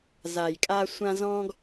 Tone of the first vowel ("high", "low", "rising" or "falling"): low